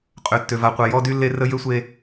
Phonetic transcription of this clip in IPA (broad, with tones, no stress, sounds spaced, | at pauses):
qʼ ø˦ tː ø˦ v a˦ qʷ a˦ j ɔ˦ d y˦ lː e˦ r ə˦ j ø˦ sʷ e˦